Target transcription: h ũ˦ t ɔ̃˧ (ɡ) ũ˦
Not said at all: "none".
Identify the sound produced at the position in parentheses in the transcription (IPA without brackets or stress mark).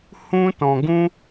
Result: ɡ